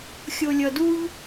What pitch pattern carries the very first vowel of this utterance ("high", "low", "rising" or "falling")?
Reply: low